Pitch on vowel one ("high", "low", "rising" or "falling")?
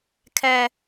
high